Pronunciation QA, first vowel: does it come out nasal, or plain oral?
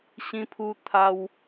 nasal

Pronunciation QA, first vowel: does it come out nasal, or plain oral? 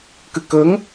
oral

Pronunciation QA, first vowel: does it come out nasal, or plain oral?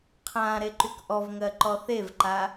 nasal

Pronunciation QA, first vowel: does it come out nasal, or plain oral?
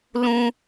nasal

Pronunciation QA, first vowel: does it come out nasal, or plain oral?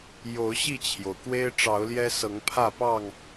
oral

